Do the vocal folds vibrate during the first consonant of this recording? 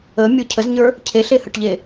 yes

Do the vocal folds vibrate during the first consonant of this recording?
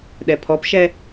yes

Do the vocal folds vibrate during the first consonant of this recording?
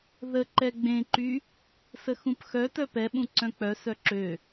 yes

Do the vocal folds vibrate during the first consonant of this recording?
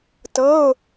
no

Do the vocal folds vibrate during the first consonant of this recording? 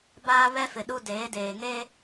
yes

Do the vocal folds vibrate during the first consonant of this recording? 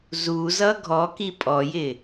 yes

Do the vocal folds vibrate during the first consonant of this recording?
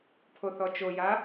no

